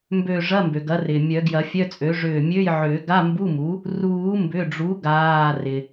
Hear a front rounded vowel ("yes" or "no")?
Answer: yes